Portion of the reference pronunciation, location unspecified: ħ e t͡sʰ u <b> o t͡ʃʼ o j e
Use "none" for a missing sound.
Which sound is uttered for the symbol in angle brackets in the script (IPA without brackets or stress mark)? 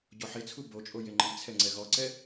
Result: b